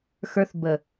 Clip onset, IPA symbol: x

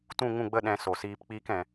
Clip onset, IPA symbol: t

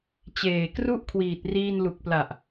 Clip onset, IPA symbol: t͡ɕ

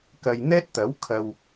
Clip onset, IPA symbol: k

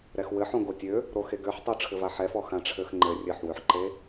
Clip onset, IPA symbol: ɾ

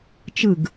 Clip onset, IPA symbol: t͡ʃ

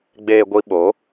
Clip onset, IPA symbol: ɡ͡b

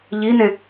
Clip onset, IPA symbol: ʎ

